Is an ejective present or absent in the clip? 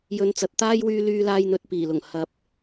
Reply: absent